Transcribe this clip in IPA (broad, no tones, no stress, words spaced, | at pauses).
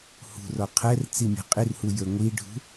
hṳrɔ qʰɛr t͡simʲɛ̤qʼirhu jə˞ŋʷiɖʱṳ